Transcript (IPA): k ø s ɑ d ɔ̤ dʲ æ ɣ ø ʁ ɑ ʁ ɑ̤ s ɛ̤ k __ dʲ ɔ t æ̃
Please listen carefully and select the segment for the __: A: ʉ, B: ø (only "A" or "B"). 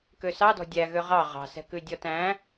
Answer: A